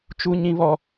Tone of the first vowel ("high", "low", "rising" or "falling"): high